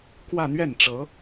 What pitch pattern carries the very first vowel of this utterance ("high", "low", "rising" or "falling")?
falling